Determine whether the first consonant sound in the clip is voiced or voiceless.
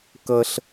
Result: voiceless